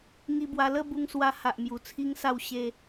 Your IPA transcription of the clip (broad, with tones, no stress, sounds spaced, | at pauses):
ŋ i˧ b w a˧ l ə˥˧ b u˧ ŋ s w a˧ h a˨ ʔ m j u˨˩ t͡sʰ i˧ ŋ s a˧ w ɕ e˦